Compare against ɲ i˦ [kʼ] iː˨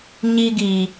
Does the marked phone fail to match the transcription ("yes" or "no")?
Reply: yes